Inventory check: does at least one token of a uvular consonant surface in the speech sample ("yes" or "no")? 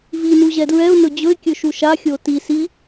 no